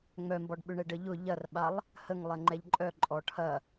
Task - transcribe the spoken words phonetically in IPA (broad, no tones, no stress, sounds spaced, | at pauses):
ŋ͡m œ m b ɔ ɖ ɓ ʏ ɳ ɛ ɖ ə ʎ ʊ ʎ ɐ r ɓ a lˠ | h ə ŋ lˠ ɛ ŋ͡ǃ ɛ ʎ ǃʼ œ ǃʼ ɔ ʈʰ ɐ